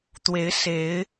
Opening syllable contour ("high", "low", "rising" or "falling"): rising